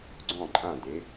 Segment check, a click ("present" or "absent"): present